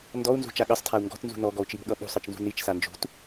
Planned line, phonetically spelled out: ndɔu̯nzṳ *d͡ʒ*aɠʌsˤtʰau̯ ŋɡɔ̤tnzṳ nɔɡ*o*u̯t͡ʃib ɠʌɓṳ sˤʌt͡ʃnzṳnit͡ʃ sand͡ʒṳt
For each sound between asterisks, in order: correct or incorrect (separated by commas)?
incorrect, incorrect